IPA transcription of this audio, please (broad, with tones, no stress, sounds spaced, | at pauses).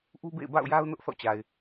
ʔ u˦ b ḛ˦˨ ɪ̯ b a̰˦˨ ʊ̯ j a˦ ʊ̯ n ʊ˦ ʔ θ ɔ̰˦˨ t͡ɕ a˨ ɪ̯